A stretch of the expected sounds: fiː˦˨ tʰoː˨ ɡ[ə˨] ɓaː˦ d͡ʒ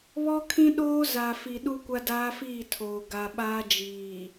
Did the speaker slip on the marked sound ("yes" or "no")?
yes